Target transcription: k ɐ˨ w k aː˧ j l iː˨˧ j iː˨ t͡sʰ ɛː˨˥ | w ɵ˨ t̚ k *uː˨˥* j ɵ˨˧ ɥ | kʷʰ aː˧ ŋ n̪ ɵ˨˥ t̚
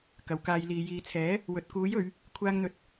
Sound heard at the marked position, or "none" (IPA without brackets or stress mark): uː˨˥